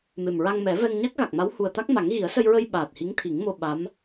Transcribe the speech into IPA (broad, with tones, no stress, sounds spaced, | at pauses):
m e˨˩ m ɹ a˧ ŋ m ɛ˨˩˦ v ɛ˧ ŋ ɲ a˦˥ k̚ ɣ a˨˩ k̚ m a˧˥ w h u˨˩ ə̯ t̪ a˦˥ k̚ m a˨˩˦ ŋ ɣ i˨˩˦ ə̯ s ə˧ j ɹ ə˧ j ɓ aː˨˩ t̚ h i˧˥ ŋ t̪ʰ i˨˩˦ ŋ m o˧ ɓ a˧˥ m